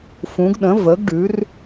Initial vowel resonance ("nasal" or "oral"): nasal